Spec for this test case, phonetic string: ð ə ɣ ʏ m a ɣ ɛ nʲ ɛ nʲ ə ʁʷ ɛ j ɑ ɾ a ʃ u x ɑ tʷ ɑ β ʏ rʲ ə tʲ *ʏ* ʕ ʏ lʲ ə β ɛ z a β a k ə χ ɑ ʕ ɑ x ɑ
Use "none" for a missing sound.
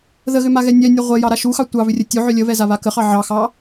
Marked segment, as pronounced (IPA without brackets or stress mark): u